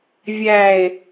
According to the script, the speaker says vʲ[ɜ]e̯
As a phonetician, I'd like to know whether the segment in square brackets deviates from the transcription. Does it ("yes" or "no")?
yes